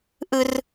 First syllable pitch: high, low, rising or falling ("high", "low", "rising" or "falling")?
high